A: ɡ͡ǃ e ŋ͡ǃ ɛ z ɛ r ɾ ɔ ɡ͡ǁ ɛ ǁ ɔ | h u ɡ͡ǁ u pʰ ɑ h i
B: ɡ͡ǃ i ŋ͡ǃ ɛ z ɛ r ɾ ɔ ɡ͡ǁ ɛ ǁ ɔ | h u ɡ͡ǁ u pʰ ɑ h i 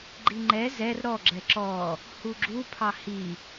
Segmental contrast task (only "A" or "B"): B